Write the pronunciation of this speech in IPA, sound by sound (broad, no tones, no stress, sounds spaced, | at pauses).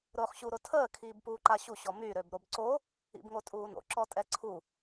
ɾ ʊː χ ɕ u ɾ ʊ tʰ əː kʰ iː b p uː ǃ a ɕ u ɕ ɔ m y ɾ ø b ɾ o b ǀ o | ḭ b ŋ o tʼ uː n o̰ ǁ ɔ tʼ ɛ ǀʰ u